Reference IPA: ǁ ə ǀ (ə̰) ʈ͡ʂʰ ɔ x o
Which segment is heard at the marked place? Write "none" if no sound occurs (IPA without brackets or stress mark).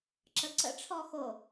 ə̰